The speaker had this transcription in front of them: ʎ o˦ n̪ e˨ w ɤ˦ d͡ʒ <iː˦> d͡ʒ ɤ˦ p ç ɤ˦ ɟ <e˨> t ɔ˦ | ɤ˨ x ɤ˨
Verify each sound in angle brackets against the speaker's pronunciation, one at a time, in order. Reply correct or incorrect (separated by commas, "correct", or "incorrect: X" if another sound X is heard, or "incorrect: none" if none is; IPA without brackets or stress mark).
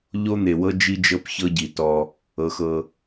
incorrect: i˦, incorrect: i˨